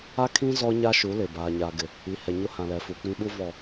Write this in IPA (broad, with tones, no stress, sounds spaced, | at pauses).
a˦ kʰ ĩ˦ z ɔ˦ ɲ a˦ ʃ u˨˦ l ɪ˨ b aː˨ ɲ aː˨ ɡ ɪ˨ | i˨ h ɛ˨ ɲ ʊ˦ h ã˨ l ɛ˨ f u˨ k͡p ĩ˦ ɓ u˦ v ɔ˨